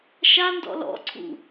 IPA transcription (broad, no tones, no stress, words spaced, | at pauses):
ʃandɔ̰ lɔ̰ǀʰṵ